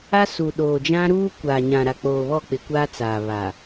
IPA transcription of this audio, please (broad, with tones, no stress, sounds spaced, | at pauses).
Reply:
a˦ s u˨ ɗ oː˨ d͡ʒ ã˦ ɾ uː˦ kʷ aː˨ ɲ ã˨ ɾ a˨ k͡p oː˨ β ɔ˦˨ k͡p ɪ˨ kʷ aː˦ t͡s aː˨ β a˨